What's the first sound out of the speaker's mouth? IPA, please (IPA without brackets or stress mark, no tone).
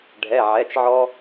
ɖʱ